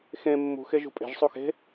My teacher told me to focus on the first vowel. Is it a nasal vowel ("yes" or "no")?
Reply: yes